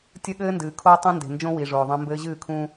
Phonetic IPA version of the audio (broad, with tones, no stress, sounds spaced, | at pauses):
tʲ ɘ˦ ɠ ɘː˦ n d ɨː˨ kʰ oː˦ tˤ ɛ̃˦ n d e̤˨ n d͡ʒ õ˦ w i˨ ʐ oː˨ ðˤ ɛ̃˦ m b ɘː˦ ʑ ɨː˦˨ kʰ ũː˦